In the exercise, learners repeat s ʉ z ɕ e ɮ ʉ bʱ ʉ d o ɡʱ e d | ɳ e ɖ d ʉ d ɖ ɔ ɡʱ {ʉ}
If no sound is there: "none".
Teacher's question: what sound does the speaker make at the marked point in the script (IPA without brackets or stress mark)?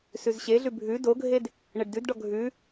ʉ